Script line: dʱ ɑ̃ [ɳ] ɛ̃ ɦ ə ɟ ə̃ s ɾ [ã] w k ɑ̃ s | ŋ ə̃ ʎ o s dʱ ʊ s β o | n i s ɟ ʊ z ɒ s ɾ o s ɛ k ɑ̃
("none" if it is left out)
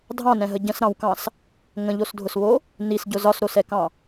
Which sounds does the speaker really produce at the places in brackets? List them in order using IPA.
n, ɑ̃

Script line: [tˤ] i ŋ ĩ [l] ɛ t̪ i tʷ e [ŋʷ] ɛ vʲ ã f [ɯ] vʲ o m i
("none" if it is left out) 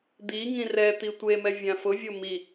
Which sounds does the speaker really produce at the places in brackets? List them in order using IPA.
d̪, r, m, ʊ

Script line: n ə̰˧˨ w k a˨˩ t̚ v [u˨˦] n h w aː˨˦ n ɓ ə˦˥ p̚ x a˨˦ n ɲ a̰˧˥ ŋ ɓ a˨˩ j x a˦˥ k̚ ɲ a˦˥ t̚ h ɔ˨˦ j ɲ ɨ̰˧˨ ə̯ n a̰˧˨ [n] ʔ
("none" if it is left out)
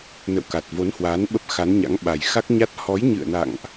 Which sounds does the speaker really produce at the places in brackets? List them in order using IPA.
o˨˦, ŋ

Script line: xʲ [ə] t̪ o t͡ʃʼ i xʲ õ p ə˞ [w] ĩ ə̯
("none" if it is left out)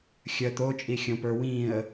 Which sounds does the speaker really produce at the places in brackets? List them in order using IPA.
ə, w

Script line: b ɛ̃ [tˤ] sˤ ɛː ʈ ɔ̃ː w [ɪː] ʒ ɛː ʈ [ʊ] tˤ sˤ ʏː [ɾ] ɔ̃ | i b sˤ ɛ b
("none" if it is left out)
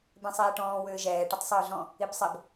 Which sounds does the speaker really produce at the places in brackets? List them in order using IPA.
none, ʏː, ə, ɮ

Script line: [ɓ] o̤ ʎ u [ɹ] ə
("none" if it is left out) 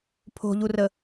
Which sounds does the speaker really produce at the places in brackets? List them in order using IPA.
pʰ, r

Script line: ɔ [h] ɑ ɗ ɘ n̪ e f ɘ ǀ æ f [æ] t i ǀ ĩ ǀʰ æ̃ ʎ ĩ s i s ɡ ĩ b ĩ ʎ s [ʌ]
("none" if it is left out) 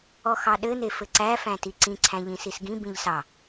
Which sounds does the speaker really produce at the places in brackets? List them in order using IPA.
x, æ̃, ɑ

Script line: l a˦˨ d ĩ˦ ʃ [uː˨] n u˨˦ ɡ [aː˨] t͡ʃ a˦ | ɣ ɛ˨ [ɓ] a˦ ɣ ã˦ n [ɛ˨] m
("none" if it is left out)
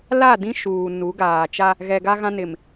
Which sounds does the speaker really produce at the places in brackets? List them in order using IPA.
uː˨, aː˨, ɡ, ɪ˨

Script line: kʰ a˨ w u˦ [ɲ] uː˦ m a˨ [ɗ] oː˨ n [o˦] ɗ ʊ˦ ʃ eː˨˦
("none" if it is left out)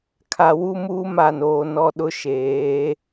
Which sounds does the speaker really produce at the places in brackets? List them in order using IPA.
m, n, ɔ˦

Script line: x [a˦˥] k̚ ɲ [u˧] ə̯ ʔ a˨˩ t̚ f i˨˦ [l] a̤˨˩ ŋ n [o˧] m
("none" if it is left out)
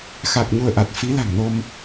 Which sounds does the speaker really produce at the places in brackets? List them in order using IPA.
a˨˩, u˧, l, o˧

